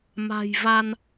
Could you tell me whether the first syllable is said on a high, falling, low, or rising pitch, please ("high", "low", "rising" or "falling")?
low